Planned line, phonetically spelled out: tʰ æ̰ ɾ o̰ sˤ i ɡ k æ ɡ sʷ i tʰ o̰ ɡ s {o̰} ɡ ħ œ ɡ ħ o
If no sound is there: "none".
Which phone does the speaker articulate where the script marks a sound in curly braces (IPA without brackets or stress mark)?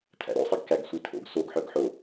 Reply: o